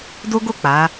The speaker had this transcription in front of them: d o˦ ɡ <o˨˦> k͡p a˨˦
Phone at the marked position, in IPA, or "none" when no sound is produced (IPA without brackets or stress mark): o˦˨